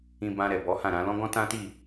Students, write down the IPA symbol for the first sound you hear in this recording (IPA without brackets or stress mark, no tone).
ĩ